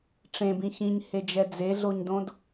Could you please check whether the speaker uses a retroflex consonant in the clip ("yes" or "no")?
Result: yes